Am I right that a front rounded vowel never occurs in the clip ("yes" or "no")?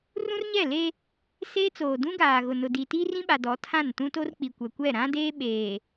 yes